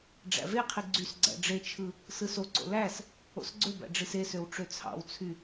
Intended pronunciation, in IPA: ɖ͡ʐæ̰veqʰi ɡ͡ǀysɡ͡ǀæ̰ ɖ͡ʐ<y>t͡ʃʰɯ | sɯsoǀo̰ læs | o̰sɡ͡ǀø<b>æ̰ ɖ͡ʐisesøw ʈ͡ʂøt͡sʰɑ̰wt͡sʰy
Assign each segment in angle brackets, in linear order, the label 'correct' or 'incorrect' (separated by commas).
incorrect, correct